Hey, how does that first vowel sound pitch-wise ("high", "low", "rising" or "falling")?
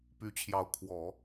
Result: rising